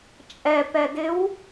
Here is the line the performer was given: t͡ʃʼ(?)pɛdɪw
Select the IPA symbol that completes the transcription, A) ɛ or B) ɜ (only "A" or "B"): A